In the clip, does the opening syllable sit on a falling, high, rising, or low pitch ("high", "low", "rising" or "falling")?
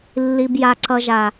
low